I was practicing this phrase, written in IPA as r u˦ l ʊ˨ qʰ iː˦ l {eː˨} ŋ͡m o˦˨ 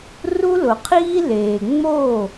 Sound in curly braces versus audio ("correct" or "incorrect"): correct